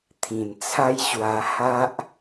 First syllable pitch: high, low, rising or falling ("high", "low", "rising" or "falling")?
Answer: low